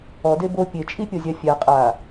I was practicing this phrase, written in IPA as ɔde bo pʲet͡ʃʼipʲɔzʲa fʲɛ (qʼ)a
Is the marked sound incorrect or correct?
correct